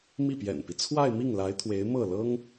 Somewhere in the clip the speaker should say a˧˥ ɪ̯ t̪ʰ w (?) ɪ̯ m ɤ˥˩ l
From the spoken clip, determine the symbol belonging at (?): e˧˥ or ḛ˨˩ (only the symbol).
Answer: e˧˥